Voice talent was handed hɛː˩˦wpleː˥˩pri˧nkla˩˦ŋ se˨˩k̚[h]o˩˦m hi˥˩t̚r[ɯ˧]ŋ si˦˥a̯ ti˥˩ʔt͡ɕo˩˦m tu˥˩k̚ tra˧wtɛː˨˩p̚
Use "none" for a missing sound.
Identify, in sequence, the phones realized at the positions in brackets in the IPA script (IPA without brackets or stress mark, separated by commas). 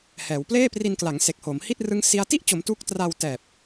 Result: h, ɯ˦˥